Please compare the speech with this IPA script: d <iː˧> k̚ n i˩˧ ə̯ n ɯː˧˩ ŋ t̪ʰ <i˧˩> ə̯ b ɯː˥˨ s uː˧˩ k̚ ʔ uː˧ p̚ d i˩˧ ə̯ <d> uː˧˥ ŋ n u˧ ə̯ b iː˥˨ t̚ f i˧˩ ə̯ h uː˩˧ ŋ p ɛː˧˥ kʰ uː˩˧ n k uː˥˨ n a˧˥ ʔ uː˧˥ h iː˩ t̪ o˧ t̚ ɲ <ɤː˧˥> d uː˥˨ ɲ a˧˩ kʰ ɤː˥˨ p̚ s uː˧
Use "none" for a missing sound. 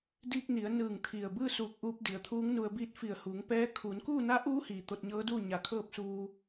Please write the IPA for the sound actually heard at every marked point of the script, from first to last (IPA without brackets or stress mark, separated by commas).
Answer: iː˧, i˧˩, t̪ʰ, ɤː˧˥